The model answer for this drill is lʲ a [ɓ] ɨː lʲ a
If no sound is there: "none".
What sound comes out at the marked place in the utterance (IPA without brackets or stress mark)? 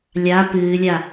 p